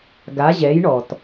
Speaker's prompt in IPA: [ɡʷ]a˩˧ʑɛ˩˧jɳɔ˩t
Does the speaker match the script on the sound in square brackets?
no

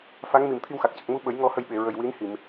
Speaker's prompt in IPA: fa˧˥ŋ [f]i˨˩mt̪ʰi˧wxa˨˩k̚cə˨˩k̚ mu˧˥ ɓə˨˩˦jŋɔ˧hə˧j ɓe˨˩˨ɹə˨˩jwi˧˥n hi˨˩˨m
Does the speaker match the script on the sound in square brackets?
no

